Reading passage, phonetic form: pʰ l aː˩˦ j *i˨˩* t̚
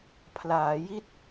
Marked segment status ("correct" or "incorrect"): incorrect